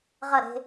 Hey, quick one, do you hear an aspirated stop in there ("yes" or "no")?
no